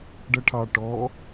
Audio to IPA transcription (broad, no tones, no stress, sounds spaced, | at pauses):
ɖ ʌ ʈʰ ɑ ʈ ɔ